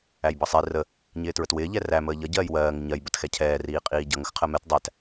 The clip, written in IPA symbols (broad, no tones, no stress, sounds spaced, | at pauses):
æ j b ʌ sˤ i r ə | ɲ ɪː t ɹ ə t w ɪː ʎ ɛ r æ m əː ʎ ʌ ɟ ɜː j w ɜː ŋ ɪ ɲ ɜ j b ə t x ɛ cʰ ɛː r iː qʼ iː ɟ ʌ ŋ ə x qʰ ɜ m ɛ t dˤ æ t